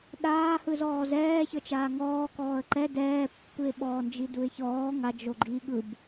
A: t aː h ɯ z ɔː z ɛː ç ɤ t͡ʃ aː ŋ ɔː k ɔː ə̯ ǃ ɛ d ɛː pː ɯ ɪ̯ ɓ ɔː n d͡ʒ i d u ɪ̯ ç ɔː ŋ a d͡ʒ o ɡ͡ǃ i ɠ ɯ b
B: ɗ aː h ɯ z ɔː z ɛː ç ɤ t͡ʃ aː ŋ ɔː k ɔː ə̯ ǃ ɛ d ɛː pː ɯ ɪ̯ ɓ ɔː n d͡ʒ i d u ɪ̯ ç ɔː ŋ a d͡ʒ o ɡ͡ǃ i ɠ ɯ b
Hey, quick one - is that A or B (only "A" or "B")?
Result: B